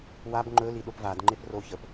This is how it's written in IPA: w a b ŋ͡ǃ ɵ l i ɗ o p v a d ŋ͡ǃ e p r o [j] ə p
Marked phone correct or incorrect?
incorrect